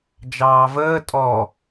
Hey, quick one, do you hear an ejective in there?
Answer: yes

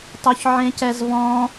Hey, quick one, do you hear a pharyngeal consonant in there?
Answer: yes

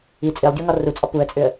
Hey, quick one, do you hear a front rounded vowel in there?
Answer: yes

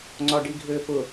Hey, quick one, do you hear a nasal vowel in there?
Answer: no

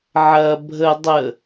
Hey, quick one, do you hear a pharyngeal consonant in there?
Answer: yes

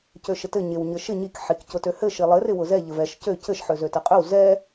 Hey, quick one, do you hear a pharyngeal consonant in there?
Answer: yes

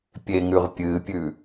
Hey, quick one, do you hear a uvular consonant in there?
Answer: yes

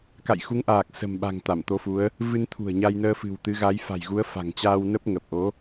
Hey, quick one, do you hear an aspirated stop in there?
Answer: yes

